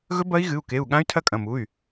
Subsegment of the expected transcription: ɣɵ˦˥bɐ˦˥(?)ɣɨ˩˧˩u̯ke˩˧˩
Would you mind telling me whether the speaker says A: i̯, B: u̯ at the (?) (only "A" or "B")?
A